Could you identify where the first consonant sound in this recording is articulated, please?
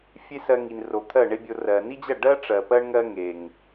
labial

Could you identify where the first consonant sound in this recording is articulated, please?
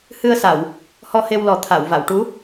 glottal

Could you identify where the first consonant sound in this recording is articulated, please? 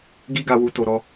velar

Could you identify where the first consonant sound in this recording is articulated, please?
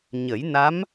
palatal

